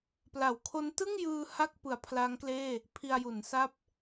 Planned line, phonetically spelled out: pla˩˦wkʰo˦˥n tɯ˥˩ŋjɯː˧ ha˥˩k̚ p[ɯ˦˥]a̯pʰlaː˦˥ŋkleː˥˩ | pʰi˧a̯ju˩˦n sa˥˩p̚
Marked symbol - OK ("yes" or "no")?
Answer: no